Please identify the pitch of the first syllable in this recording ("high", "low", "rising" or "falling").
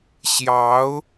rising